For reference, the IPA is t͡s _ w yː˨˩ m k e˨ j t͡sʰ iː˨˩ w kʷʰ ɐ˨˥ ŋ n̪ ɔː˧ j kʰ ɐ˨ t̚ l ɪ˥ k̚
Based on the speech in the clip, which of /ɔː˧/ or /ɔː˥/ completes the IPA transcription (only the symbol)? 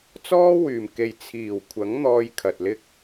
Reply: ɔː˥